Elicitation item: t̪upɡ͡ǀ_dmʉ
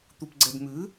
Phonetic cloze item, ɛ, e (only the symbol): ɛ